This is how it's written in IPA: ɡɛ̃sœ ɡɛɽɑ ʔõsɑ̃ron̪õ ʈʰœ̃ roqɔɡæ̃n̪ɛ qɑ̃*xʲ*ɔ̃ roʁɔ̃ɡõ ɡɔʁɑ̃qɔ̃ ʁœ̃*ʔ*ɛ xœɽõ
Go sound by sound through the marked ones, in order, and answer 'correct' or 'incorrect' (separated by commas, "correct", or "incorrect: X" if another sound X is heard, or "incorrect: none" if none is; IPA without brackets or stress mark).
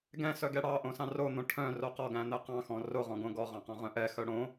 incorrect: x, correct